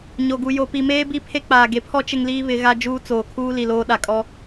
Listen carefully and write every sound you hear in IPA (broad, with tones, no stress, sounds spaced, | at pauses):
ɲ o˨ ɡ u˨ j o˨ p i˨ m eː˦ b i˦ pʰ e˦ k͡p aː˨ ɡ e˨ pʰ ɔ˦ t͡ʃ ɪ˦ ŋ l iː˦ β ɪ˨˦ ɣ a˦ d͡ʒ uː˦ t͡s oː˨ kʰ uː˦ l i˨ l oː˦ ɗ a˨ kʼ ɔ˦